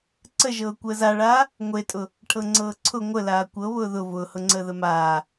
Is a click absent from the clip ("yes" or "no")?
no